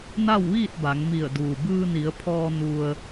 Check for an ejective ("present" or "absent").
absent